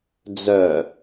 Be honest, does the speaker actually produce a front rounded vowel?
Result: yes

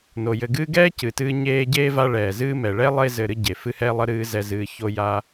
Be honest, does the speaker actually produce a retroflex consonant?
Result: yes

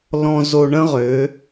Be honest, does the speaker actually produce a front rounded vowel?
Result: yes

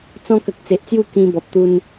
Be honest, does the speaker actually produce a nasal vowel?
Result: yes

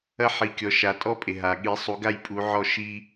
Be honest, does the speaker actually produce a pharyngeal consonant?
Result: yes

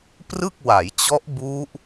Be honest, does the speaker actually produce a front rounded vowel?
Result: no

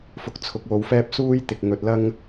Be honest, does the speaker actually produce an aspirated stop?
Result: yes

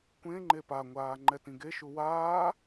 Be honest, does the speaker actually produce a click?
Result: yes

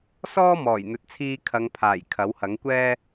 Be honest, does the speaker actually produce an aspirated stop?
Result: yes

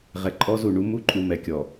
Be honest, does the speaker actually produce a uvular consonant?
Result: yes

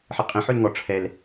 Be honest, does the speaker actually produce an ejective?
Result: yes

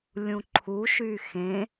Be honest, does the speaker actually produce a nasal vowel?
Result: yes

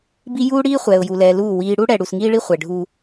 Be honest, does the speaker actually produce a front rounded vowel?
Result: no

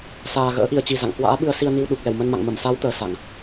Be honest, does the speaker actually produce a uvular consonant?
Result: no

